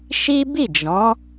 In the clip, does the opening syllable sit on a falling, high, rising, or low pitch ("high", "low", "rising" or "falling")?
high